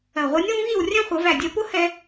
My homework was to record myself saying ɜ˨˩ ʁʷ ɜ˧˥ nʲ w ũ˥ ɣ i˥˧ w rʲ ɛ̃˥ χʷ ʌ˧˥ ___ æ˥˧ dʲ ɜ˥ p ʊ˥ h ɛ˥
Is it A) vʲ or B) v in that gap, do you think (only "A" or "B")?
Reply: B